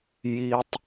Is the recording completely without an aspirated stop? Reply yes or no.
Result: yes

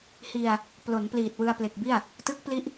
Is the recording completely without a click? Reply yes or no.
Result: yes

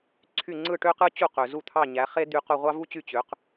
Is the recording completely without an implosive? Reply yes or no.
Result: yes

